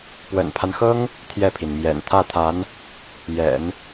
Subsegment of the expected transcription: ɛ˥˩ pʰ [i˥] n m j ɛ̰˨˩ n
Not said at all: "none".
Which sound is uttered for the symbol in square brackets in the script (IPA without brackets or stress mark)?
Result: i˩